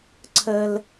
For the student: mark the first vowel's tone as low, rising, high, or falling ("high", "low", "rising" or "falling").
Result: high